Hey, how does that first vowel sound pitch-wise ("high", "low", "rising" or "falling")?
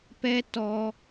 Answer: high